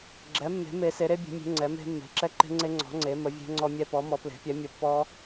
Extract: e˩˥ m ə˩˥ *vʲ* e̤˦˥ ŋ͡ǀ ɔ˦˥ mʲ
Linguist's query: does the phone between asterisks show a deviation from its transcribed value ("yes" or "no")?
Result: no